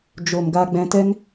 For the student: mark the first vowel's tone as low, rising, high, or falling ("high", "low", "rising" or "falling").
low